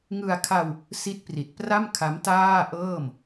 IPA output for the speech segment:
ŋ ɯ˧ a̯ kʰ a˧ w | s i˦˥ t̚ p r i˨˩ t̚ p r a˥˩ m kʰ a˦˥ m t aː˥˩ ʔ ɤː˥˩ m

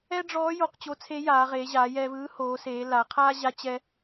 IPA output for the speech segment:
ɛ˥ ɖ͡ʐ ɔː˧˥ j o˧ q t͡ɕ o˧˥ t͡sʰ e˧˥ j aː˩˧ ʁ eː˩˧ ʑ aː˩˧ j ɛː˧ v ɯː˧˥ h oː˩˧ s eː˩˧ l a˩˧ qʰ aː˥ ʑ a˧˥ t͡ɕ ɛ˧

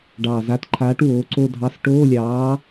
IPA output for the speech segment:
ɖ ɑː˨˩ z a˨˥ t ǃʰ aː˨˥ ʈ w oː˨˥ ǀ o˥˧ dʱ ɑ˧˥˧ s ʈ oː˧˥˧ lʲ ɑː˨˥

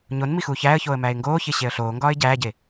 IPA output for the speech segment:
ɲ o n m i x uː ç æː ə̯ ç oː ə̯ m æː ɪ̯ ŋ ɡ oː ç e ɕ e ə̯ ɬ oː ŋ ɡ ɒː ɪ̯ ɟ æː ɟ e

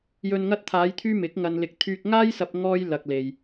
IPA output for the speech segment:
j ɵ˨ n ŋ ɐ˧ t̚ t̪ʰ aː˨˧ j t̪ʰ yː˧ m ɪ˨˥ k̚ ŋ ɐ˧ n l ɪ˧ k̚ t̪ʰ yː˧ k̚ ŋ aː˥ j s ɐ˧ p̚ ŋ ɔː˧ j l ɐ˨ k̚ l e˨ j

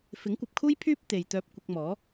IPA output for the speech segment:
f ɪ˨˥ ŋ kʷ ɐ˨ p̚ kʰ uː˥ j pʰ yː˥ p̚ t̪ e˨ j t̪ œː˧ p̚ kʷ ɪ˧ k̚ m ɔː˨˥

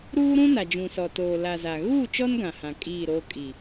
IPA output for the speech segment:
ɾ uː˦ ɾ ũ˦ n a˨ d͡ʒ ũ˨ s ɔ˨ t oː˨ l a˨ z a˨ ɣ uː˦˨ t͡ʃ ɔ˦ n ɡ ã˨ h ã˨ kʼ iː˦˨ ɾ oː˦ kʼ i˨

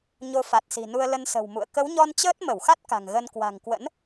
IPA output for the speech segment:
ɲ o˧ f a˨˩ t̚ s i̤˨˩ n u˧ ə̯ l ə˧ n s ə̤˨˩ w m ṵ˧˨ ə̯ k ə˨˦ w ɲ ɔ˧ n t͡ɕ əː˦˥ t̚ m ə˧˩ w x a˦˥ t̚ k a̤˨˩ ŋ ɣ ə˧ n k w a̤˨˩ ŋ k w ə̰˧˥ n

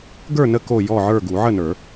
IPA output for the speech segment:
ɡ ə˞˥˨ n ə˥˨ k o˥˨ j ɔ˥˨ ʕ ə˞˥˨ ɡ u˨˩˦ ʕ ə˥˨ n ə˞˨˩˦

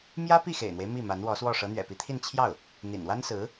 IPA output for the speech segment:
m j ä˥ p i˥˩ x ḛ˨˩ ɪ̯ n̪ w e˦ ɪ̯ m i˥˩ m a˧˥ n w ɔ˧˥ s w ɔ˥˩ ʂ ɤ˧˥ n̪ ɥ ɛ̰˨˩ p i˧˥ t̪ʰ i˥˧ n t͡ɕʰ j ɑ˥˩ ʊ̯ | n̪ ḭ˨˩ n w a˥ n s ɹ̩˧˥

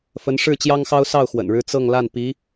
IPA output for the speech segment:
f ə˧˥ n ʂ ɻ̩˥˩ t͡ɕ j ɑ˥ ŋ x ɑ˥ ʊ̯ s ɑ˥˩ ʊ̯ x w ə̰˨˩ n ɻ ɻ̩˥ t͡s ɤ˥˧ ŋ l a˥˩ n p i˧˥

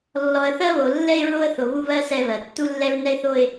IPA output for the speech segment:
lː ɔ˨ ə̯ θ ɜ˦ β o˨ lː ɛ˦ ɪ̯ ɹ o˦ ə̯ θ o˨ β u˦ β ɜ˦ s ɛ˦ β ɜ˨ tː u˦ lː ɛ˦ ɹ n ɛ˦ ɪ̯ θ o˦ ɪ̯

